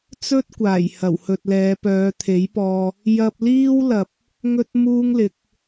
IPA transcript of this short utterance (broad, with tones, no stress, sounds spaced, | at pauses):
t͡s ɵ˥ t̚ kʷ aː˨˩ j h ɐ˨˩ w h ɵ˨ t̚ l ɛː˨˧ p œː˨˧ t̪ʰ e˨˥ j p ɔː˧ | j ɐ˧ p̚ l iː˥ w l ɐ˨ p̚ | ŋ ɵ˧ t̚ m uː˧ ŋ l ɪ˨˥ k̚